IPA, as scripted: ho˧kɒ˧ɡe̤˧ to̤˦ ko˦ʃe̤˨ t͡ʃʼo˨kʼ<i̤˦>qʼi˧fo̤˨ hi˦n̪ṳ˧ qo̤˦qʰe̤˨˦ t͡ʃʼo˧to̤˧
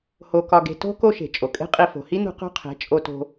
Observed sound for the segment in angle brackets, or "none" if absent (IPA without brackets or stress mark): e̤˦